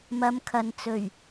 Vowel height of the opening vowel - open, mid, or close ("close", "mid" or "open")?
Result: open